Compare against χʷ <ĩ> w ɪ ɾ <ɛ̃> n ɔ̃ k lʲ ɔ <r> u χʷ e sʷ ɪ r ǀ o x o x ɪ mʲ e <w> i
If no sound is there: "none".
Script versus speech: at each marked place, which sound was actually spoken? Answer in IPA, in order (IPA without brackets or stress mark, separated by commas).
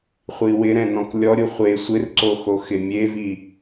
i, ɛ̃, ɾʲ, v